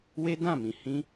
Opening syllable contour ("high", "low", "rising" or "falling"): high